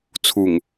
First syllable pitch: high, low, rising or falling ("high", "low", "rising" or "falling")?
low